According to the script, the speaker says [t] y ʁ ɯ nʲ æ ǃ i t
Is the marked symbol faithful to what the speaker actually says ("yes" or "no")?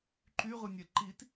no